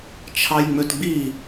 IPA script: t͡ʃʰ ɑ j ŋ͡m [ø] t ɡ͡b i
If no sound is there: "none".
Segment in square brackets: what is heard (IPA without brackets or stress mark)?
ø